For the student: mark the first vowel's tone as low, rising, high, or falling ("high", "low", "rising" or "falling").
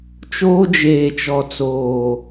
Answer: high